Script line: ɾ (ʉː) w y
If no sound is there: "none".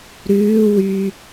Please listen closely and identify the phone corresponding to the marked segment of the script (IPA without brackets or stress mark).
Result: ʉː